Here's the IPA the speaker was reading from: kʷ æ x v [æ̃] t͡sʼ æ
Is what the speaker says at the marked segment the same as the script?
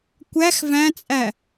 yes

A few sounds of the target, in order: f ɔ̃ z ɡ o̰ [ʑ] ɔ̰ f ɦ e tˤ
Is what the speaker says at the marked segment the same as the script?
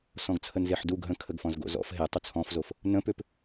no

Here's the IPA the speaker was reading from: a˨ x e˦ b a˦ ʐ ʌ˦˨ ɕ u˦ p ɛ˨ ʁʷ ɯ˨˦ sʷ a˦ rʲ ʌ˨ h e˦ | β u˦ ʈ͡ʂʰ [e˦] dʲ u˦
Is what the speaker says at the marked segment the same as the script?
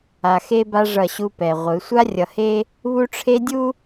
yes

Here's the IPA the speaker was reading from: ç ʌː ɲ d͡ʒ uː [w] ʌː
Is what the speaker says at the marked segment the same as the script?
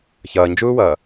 yes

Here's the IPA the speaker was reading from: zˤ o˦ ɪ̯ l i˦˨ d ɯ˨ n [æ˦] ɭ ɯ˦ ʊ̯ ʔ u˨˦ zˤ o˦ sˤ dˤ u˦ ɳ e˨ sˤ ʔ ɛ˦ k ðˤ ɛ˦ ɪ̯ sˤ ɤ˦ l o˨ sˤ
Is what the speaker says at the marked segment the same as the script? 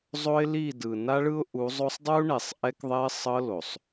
no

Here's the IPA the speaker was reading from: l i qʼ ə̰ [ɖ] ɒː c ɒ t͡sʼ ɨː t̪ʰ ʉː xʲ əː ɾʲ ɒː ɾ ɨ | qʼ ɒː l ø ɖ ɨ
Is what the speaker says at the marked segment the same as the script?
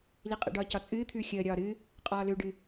yes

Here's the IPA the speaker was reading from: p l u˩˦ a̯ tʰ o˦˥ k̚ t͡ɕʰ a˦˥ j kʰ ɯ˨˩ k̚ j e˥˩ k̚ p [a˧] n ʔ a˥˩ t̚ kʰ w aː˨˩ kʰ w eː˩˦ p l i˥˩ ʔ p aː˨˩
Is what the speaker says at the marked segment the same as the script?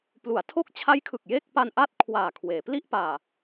yes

